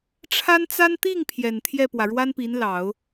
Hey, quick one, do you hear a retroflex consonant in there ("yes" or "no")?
yes